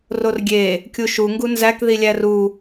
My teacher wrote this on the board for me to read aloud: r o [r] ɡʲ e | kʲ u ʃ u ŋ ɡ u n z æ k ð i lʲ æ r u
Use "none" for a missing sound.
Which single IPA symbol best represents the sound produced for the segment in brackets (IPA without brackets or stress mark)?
r